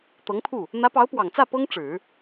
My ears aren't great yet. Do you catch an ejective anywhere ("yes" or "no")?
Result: no